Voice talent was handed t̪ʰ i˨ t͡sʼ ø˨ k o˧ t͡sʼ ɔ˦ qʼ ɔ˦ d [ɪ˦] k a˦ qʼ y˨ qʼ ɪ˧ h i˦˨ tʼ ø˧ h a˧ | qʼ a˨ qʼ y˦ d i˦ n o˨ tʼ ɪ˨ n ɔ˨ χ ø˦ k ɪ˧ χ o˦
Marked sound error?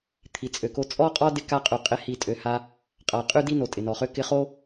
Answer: no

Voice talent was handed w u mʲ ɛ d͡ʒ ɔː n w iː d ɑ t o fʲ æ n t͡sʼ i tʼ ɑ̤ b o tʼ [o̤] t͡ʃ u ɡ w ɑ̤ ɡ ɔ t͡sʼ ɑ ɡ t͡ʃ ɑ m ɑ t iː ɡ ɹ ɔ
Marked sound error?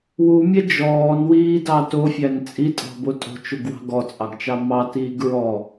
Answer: no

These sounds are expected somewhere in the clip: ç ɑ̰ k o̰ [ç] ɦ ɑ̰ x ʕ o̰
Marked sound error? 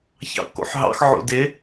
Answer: yes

